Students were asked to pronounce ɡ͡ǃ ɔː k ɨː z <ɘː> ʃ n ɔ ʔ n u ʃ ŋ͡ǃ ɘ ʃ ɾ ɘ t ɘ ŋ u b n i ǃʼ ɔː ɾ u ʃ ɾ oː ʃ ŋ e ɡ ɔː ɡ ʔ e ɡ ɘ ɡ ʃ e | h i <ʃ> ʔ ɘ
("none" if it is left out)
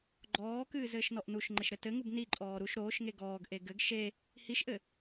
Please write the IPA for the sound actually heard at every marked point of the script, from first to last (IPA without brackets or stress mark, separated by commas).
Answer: ɘː, ʃ